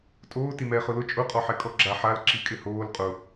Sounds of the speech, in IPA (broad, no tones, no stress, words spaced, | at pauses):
tʼoː timɛːχʊlʊ t͡ʃʼʊ qʼɔħɛkʼɔɡ͡ǁa ħal ǁikʼɪhoːl qʼʊ